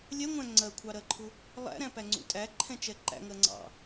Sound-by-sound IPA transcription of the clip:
lʲ ɛ ŋʷ æ̃ ŋ͡ǀ ɜ kʷʰ ɑ ɾ ɜ ǃʰ ʊ | lˠ æ̰ ɾ æ̃ p æ ŋ͡ǀ ṵ tʼ æ ǃʰ ɛ̃ t͡ʃ ɛ ǃ æ̰ ŋ ɜ ŋ͡ǀ ɑ̰

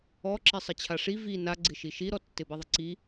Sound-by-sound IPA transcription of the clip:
ɔ ǁ i sˤ ɪ t͡ɕʰ a ʂ i v i n a ɡ͡ǀ ɪ ʃ i ʃ i ɾ ɔ tː ɪ b i ðˤ ɪ ǀ i

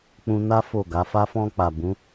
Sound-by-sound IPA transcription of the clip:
k͡p ũ˧ n a˦ f o˦˨ ɡ a˨˦ f a˧ f ɔ̃˧ k͡p a˨ b ũ˨˦

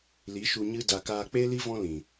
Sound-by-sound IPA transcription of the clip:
l i˨˦ ʃ u˧ ɲ ɨ˧ d a˨ k aː˧ k͡p e˦ l i˦ v ɔ̃˦ l ĩ˨

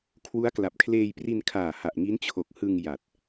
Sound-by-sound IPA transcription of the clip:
kʰ w u˦˥ a̯ k l a˨˩ p̚ kʰ l eː˧ j p r i˧ n kʰ aː˨˩ h a˨˩ ʔ ŋ i˦˥ n t͡ɕʰ o˨˩ k̚ h ɯ˧ ŋ j a˨˩ t̚

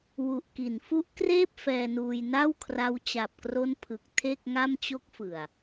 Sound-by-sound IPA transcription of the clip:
w u˨˩ ʔ k i˩˦ n f u˦˥ ʔ k r eː˥˩ p̚ f ɛː˧ n uː˧ j n a˥˩ w kʰ r a˦˥ w t͡ɕ a˨˩ p̚ k r o˦˥ n pʰ ɯ˨˩ k̚ tʰ e˥˩ k̚ ŋ a˥˩ m t͡ɕ o˦˥ k̚ f ɯ˨˩ a̯

